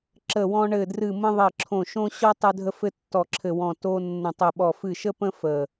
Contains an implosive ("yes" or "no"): yes